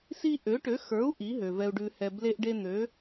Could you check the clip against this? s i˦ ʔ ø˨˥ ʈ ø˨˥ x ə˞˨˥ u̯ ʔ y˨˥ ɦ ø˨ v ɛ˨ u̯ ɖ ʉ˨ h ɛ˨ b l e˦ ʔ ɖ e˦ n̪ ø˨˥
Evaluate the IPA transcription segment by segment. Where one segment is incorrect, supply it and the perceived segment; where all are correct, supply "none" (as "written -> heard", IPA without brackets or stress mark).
y˨˥ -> i˨˥